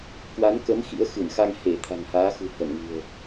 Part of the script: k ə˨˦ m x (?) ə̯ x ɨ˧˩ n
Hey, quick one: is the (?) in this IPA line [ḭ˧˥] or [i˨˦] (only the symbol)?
ḭ˧˥